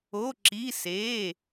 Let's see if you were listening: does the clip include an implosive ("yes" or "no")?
no